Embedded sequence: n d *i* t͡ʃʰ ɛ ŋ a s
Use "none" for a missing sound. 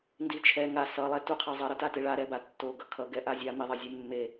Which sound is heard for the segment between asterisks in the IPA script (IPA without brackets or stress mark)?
i